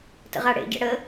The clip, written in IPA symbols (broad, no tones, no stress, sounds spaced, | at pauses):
t ə̰ ʁ a ɽ ḛ ɟ ɛ̰ ɽ ə